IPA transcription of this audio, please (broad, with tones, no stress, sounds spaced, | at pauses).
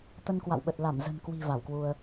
t̪ ə˧ n k w a̰˧˨ w ɓ ə˨˩ t̚ l a˧˩ m z ə̤˨˩ n k w i̤˨˩ v a˧˩ w k w u˧ ə̯